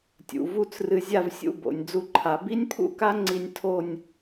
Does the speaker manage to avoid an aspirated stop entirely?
no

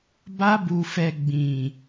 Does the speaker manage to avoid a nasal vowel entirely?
no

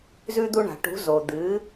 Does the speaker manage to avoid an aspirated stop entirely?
yes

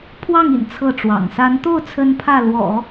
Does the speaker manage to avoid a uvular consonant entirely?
yes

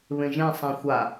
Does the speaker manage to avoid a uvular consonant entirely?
yes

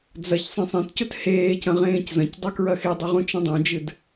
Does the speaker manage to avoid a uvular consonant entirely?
no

